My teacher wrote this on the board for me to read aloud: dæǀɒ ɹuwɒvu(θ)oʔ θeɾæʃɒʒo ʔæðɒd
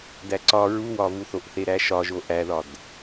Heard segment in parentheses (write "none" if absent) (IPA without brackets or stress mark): θ